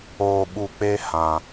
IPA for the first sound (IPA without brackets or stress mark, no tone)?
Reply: oː